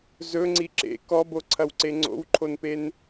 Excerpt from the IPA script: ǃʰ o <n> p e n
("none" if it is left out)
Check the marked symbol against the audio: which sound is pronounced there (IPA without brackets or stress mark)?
n